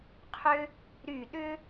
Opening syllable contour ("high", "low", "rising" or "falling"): high